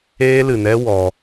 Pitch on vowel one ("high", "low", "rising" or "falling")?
high